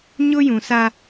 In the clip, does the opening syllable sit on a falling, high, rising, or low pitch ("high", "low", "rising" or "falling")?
high